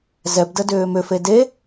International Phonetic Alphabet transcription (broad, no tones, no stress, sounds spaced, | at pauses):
z ɛ b d ə d ʏː m ʏ f e d e